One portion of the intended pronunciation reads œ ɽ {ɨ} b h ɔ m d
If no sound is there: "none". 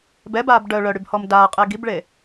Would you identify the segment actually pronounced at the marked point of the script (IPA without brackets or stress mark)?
y